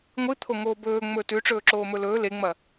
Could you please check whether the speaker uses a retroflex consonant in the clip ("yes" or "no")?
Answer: yes